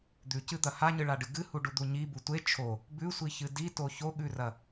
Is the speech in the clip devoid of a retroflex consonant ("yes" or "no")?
no